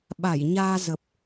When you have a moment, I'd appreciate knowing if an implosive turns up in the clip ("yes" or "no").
yes